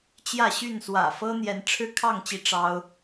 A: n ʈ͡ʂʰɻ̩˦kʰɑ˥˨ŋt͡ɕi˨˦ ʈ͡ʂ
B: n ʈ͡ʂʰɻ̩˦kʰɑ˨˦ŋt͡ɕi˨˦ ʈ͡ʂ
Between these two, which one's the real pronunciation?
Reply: A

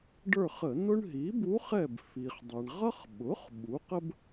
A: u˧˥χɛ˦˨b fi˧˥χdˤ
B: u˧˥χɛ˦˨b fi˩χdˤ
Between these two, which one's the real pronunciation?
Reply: B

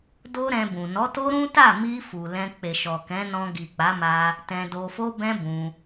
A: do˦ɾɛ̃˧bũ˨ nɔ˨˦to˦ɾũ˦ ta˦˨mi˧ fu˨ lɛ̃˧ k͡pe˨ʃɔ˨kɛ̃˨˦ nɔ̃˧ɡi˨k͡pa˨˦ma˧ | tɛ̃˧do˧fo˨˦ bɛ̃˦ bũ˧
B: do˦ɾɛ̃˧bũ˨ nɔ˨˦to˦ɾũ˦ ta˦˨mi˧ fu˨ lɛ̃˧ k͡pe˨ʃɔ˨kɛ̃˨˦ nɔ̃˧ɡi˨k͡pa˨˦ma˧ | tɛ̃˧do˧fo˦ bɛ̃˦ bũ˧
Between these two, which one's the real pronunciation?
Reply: B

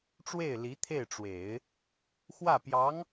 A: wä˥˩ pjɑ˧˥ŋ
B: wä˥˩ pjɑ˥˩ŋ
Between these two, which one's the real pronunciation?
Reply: A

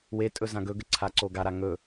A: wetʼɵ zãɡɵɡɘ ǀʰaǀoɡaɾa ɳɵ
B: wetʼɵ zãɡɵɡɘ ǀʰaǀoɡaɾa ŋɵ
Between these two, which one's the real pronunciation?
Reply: B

